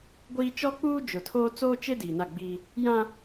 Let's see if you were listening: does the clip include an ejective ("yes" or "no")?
no